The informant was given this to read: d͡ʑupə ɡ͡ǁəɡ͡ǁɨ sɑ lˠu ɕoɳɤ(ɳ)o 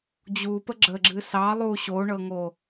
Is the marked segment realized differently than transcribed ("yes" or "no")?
yes